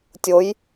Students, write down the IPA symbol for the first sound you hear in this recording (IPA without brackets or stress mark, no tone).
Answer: tʲ